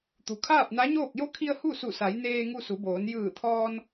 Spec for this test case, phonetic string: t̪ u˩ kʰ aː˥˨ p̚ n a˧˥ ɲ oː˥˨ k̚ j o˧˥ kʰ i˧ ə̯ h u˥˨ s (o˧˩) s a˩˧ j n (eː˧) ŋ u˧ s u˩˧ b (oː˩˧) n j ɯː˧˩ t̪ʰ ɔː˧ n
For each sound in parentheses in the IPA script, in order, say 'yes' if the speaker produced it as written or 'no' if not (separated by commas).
no, yes, yes